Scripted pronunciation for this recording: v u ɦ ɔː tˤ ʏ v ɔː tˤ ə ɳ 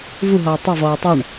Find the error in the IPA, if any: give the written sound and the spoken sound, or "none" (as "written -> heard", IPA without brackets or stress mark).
ə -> ʏ